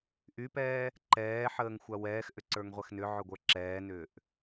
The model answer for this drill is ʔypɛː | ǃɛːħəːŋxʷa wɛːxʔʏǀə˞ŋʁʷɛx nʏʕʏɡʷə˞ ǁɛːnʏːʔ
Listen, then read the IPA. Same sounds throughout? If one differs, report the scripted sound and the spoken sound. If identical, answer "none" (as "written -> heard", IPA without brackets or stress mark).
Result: none